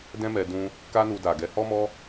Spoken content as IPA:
d ɛ̃˦ m ɛ˧ d ũ˧ | k a˦ n u˧ d a˨ ɡ ɛ˨˦ h ɔ˦ m ɔ˦

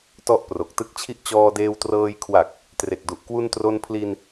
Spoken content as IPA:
t ɔ˦˥ ʔ p r o˨˩ k̚ t ɯ˦˥ k̚ t͡ɕʰ i˦˥ ʔ t͡ɕ ɔː˧ d eː˧ w t r ɤː˧ j kʰ w a˨˩ k̚ | t r e˨˩ k̚ d u˨˩ ʔ k w u˧ n t r o˧ n pʰ l i˧ n

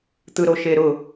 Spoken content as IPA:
t̪ ɯ ɾ o ʃ e ɾ ʊ

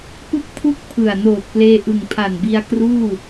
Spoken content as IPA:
p ɯ˥˩ k̚ pʰ u˥˩ k̚ pʰ ɯ˨˩ a̯ n oː˨˩ t̚ p l eː˧ ʔ ɯ˨˩ ŋ pʰ a˨˩ n b i˧ a̯ k r uː˥˩

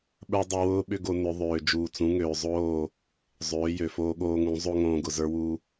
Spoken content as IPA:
ɓ ə˞˧ dˤ ʊ˦ w ʊː˦ ɓ ʏ˦ ɡ o˧ n ʏ˨˦ ðˤ øː˨ d͡ʒ uː˨ t͡s ũ˨˦ ŋ øː˨ zˤ oː˦˨ | zˤ øː˨˦ j ø˨ f oː˧ ɠ oː˧ ŋ ũ˨˦ zˤ o˦ ŋ õː˧ ɡ ʊ˨ z ə˞˦ w u˦

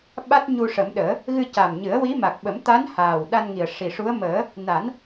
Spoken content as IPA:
ɓ a˦˥ t̚ ɲ u˧ ʂ ə˨˩˦ m ɗ əː˨˩˦ | ɣ ɨ˧ c a˨˩ m ɲ ɨ˨˩˦ ə̯ w i˧˥ m a˨˩ k̚ ɓ ə˨˩˦ m t̪ a˧˥ n h aː˨˩ w ɗ a˧ n ŋ i˨˩ ə̯ ʂ i˨˩ ʂ u˧˥ ə̯ m əː˨˩˦ | n a˨˩˦ n

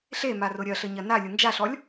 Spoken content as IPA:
ɬ e m a r ʊ ɾʲ ɐ ɬ ə ɲ ɐ n a lʲ ʊ n d͡ʒ a ɬ ɔ lʲ

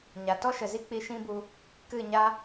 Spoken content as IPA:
ɲ a˨ t ɔ˦ ʃ ə˨ z i˦ k͡p i˧ ʃ ĩ˦ b u˧ | k ɨ˦˨ ɲ a˦

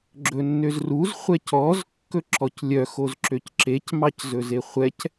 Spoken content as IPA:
ɡ͡ǁ ɵ nː ø z r u z χʷ ɛ c ɔ z kː ɵ ǁ ɔ c lʲ œ x o z ǁ ø c ǁ e c m ɑ c z ɵ z e χʷ ɛ c

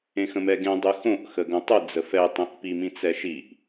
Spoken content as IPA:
ẽ x ə̃ m ɛ ɡ ẽ dˤ ʉ x õ ʔ x ə ɡ õ tˤ ʉ d͡z ə f ɛ tˤ ẽ ʔ p i m ĩ t͡s ɛ ʃ i ʔ

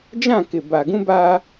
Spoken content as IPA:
d͡ʒ ã˦˨ k ɪ˨ b a˨ ɡ ũ˦ b aː˦

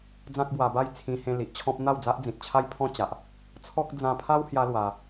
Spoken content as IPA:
d͡z ã˦ k̚ b w a˧ b a˥˧ j t͡sʰ ĩ˧ h ẽ˧ l i˨ ʔ t͡ɕʰ ɔ̃˦ p̚ n̪ a˥˧ w d͡z a˦ ʔ d͡z ĩ˨ t̚ t͡ɕʰ a˦ j pʰ ɔ̃˦ t͡ɕ a˨ ʔ | t͡sʰ ɔ˦ k̚ d͡z ã˧ pʰ a˦ w h j a˦ l w a˧

